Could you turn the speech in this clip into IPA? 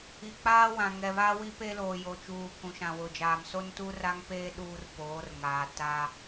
i˨k͡paː˦wã˨ ŋɛ˨βa˦wi˦pe˦ loː˨jo˨t͡ʃuː˨ kũ˨ʃã˨wʊ˨d͡ʒaː˨m so˦ntu˦ra˦ŋpeː˦ ɗuː˦r poː˨˦rŋaː˨ ta˦

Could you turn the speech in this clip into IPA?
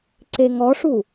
ǀeŋɔʂu

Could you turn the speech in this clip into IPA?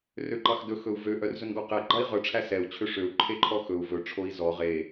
røǃɑxdɵ xɵu̯vø ʔœrzɵnɡɔqɛ ɡ͡ǃɑi̯ʁœ ʈ͡ʂʰæsɛu̯ t͡ɕʰøʂøu̯ ǃʰeǃʰɔxɵu̯ vɵ ʈ͡ʂʰoi̯zɔ ʁe

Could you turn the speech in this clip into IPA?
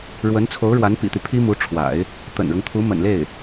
ɻwə˧˥n t͡sʰo˧˥ʊ̯ɻwa˧˥npḭ˨˩t̪y˦ pʰi˥mu˧˥ʈ͡ʂʰwa̰˨˩˦ɪ̯ | t̪ə̰˨˩nɻʊ˦ŋt̪ʰu˧˥ mə̰˨˩nle˥˩ɪ̯

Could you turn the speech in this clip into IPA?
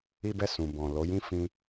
i˦bɛ˦˨sũ˨ bɔ̃˨ lo˨˦jĩ˦ fĩ˧

